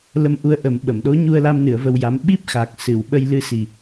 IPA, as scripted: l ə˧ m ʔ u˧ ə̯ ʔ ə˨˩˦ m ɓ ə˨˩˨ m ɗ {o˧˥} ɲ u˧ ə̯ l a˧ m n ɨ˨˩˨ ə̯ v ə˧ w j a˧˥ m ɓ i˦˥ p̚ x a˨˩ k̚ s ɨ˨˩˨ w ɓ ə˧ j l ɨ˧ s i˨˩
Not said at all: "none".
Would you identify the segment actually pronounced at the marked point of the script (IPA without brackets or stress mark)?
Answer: o˧˥